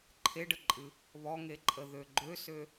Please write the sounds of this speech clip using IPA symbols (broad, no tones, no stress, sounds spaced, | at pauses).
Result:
ǃʰ e ɖ ə ǃʼ ɨ | β ɔ ŋ e ǃʼ ə ð ø ɡ͡ǃ ø s ø